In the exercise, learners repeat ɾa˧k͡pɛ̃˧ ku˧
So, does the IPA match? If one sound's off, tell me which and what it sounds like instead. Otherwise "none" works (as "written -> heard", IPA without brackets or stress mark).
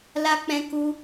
ɾ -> l